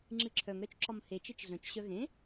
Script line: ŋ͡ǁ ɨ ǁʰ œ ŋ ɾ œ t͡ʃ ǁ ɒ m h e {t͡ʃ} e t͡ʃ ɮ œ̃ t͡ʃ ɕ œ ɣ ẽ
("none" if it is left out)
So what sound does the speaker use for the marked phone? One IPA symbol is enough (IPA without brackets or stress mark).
t͡ʃ